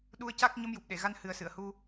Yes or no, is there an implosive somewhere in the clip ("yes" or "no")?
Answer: yes